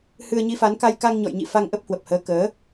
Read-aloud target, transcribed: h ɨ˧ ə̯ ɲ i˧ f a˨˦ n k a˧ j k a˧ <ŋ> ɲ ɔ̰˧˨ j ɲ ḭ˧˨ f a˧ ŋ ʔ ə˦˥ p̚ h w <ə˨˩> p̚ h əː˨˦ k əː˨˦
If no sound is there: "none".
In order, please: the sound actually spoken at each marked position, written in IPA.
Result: ŋ, ə˨˩

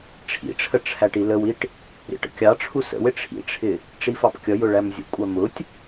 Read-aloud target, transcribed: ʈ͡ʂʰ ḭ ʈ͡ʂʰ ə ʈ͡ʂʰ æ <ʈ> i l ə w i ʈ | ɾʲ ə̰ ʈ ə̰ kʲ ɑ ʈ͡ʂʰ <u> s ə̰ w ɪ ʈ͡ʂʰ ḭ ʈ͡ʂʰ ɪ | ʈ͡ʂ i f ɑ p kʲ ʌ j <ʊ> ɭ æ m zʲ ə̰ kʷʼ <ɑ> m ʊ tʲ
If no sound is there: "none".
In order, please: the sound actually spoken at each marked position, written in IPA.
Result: ʈ, u, ʊ, ɑ

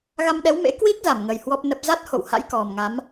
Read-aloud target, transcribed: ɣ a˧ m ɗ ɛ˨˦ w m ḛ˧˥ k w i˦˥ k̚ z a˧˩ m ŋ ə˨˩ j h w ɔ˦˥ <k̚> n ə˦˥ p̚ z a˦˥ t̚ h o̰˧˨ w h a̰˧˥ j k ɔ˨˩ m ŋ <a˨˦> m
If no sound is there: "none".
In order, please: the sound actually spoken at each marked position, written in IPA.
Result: p̚, a˨˦

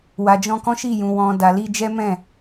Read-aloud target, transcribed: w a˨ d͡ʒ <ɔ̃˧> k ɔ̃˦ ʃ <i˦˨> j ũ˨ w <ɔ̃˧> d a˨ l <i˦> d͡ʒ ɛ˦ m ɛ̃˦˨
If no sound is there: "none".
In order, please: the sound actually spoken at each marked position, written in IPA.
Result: ɔ̃˧, i˦˨, ɔ̃˨, i˧

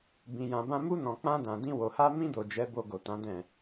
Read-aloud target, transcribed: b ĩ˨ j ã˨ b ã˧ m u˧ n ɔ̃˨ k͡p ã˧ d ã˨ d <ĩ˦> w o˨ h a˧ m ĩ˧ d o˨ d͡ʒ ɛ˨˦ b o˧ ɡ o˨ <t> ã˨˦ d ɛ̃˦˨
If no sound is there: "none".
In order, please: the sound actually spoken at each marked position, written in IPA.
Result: ĩ˧, t

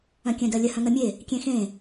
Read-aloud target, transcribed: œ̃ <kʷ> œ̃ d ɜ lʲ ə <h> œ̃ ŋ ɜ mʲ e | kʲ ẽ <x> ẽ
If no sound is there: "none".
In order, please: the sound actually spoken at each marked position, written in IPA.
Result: kʲ, h, x

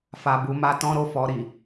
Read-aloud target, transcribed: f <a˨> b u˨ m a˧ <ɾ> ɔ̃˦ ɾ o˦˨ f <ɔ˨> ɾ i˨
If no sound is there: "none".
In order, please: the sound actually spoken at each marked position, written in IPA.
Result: a˨, t, ɔ˧

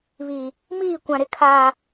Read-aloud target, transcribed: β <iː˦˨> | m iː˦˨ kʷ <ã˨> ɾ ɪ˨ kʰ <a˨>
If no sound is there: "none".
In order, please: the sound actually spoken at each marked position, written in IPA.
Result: iː˨, ã˨, aː˨

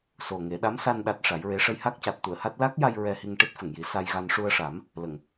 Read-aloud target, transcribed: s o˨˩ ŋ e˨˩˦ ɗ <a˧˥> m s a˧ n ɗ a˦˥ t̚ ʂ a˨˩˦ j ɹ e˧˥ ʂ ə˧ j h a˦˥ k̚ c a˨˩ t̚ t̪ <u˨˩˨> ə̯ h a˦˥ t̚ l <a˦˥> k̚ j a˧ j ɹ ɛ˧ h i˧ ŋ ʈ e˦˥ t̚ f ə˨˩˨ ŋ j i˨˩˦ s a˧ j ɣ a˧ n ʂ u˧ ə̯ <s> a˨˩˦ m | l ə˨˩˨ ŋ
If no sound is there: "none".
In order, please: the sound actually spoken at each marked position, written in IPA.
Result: a˧˥, u˨˩˨, a˦˥, ʂ

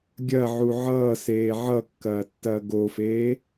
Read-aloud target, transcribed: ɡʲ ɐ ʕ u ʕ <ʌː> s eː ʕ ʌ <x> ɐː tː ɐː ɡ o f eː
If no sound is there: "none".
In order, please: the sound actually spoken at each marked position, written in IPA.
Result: ʌː, kː

